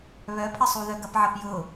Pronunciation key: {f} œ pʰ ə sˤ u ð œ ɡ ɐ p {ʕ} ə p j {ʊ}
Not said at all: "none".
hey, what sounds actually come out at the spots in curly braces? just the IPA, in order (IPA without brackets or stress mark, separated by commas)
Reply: β, ʕ, ʊ